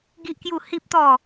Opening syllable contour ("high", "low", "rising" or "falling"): high